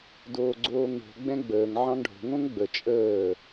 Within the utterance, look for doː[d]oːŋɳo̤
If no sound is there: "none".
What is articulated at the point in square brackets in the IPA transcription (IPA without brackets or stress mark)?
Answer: ɡ͡ǀ